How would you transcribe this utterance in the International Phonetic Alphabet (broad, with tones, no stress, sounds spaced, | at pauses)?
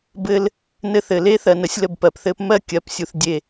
b ɘ˦ l | n ɘ˦ θ ɘ˨ l e˦ θ ɜ˨ n ə˨ sʲ l ə˦˨ b p ɜ˨ p θ ɘ˦ p m ɜ˦ kʲ ɜ˨˦ p sʲ u˨ θ dʲ e˦˨